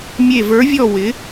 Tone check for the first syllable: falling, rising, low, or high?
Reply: falling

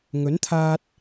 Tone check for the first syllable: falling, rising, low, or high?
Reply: rising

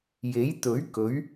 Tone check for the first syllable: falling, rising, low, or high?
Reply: rising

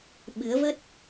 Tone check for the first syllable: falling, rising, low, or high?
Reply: rising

